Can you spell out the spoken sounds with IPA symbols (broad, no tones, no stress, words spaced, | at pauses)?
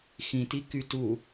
xĩti kytu